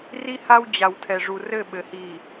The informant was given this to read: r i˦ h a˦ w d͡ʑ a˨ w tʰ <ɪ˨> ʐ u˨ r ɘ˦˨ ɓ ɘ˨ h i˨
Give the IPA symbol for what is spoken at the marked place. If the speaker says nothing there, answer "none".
ɛ˨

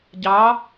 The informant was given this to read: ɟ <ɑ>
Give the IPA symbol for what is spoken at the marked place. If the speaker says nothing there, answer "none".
ɑ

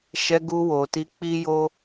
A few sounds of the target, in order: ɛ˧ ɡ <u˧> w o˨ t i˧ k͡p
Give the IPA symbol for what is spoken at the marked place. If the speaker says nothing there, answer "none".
u˧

